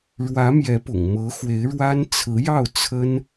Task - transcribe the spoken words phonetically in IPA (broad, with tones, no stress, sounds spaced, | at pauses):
ɻ w ä˧˥ m j ɛ˧˥ p ʊ̰˨˩ ŋ m ɤ˧˥ x w e˧˥ ɪ̯ ɻ w a˥ n t͡sʰ ɹ̩˧˥ j ɑ˥˩ ʊ̯ t͡sʰ ə˥ n